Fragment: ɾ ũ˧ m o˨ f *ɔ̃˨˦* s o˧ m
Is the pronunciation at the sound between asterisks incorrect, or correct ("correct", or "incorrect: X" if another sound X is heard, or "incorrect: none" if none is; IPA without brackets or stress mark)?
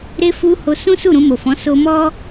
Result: correct